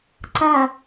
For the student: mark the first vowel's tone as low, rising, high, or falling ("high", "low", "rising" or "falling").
falling